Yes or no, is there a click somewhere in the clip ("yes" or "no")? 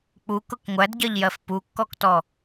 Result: no